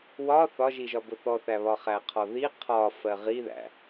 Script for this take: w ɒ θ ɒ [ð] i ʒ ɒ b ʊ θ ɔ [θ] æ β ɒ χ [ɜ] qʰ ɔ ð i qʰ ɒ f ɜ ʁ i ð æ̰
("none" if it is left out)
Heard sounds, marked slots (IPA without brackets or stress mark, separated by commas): ʒ, θ, æ